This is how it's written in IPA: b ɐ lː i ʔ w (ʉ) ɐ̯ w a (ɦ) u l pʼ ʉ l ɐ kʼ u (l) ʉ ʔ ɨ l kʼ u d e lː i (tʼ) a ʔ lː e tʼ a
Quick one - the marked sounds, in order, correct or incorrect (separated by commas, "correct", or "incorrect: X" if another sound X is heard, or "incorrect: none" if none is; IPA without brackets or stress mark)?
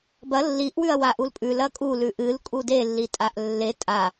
correct, incorrect: ʔ, correct, correct